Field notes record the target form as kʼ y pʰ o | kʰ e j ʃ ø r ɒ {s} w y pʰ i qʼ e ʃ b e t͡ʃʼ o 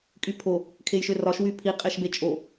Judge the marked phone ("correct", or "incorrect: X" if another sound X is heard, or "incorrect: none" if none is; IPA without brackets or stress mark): incorrect: ʃ